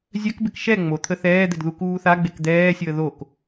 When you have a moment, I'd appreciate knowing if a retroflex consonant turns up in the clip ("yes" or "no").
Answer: no